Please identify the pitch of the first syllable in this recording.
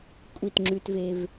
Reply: falling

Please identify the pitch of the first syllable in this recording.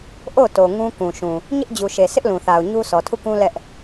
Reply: falling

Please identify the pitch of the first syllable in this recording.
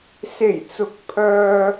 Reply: low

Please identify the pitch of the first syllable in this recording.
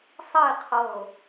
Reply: falling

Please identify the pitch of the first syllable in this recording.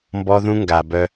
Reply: high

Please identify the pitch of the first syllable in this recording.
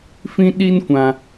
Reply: high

